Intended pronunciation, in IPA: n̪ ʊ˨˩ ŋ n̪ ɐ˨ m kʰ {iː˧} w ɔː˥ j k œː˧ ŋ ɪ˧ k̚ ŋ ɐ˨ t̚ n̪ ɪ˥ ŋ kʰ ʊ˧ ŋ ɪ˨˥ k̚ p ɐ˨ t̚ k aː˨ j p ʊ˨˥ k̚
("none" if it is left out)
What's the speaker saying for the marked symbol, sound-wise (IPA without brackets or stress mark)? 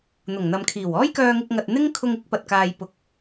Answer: iː˨˩